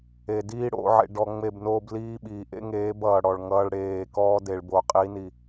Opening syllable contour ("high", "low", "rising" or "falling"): low